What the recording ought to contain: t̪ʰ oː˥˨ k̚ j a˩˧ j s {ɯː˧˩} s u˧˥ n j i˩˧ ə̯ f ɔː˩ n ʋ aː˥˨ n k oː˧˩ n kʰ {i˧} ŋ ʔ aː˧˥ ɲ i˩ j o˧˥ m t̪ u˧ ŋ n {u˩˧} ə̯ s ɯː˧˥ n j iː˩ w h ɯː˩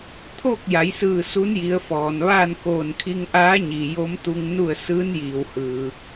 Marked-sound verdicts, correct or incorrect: correct, correct, incorrect: u˥˨

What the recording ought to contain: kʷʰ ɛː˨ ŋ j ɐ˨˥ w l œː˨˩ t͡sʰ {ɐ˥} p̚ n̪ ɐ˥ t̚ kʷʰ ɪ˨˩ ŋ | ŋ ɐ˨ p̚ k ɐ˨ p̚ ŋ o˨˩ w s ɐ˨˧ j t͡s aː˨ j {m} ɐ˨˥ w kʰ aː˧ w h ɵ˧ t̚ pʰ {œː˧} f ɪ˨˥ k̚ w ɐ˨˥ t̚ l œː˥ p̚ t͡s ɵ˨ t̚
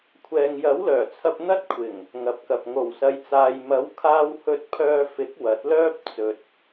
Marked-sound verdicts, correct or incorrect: incorrect: ɐ˧, correct, correct

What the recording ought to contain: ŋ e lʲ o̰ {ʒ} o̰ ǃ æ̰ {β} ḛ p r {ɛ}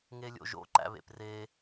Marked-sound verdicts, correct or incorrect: correct, correct, incorrect: e

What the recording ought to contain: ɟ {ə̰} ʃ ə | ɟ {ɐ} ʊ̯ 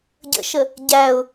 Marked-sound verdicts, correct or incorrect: correct, incorrect: æ

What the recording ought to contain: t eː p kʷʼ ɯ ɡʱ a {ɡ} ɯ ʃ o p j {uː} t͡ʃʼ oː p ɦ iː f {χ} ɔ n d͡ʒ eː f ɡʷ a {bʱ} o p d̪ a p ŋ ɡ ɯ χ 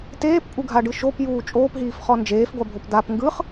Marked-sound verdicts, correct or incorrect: incorrect: ɖ, correct, correct, correct

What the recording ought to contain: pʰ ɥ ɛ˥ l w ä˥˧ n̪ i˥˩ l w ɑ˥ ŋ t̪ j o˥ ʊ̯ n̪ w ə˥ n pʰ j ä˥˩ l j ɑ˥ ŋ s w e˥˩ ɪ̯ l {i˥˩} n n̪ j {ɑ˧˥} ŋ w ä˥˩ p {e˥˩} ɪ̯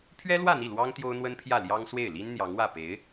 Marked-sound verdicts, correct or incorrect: incorrect: i˥, correct, incorrect: e˧˥

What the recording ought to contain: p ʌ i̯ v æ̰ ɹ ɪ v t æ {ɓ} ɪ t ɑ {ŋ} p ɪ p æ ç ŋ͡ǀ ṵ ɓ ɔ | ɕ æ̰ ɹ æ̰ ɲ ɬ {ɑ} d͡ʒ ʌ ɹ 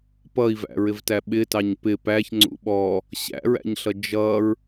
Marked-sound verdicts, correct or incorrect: correct, incorrect: ɲ, incorrect: ʌ

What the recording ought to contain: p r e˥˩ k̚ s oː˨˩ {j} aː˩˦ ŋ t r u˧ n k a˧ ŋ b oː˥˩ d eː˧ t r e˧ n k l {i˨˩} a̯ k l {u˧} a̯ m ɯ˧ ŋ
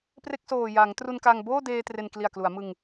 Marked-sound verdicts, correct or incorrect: correct, correct, incorrect: u˩˦

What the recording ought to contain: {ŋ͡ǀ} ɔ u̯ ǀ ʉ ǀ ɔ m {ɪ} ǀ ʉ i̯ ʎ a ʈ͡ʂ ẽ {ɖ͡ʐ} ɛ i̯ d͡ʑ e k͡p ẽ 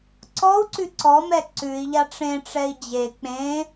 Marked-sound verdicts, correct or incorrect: incorrect: ǀ, incorrect: ɛ, incorrect: ʈ͡ʂ

